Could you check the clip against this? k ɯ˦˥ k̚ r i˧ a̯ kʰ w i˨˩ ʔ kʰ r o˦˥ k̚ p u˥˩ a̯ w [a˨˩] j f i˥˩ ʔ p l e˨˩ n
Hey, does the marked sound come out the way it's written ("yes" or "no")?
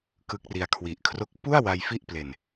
no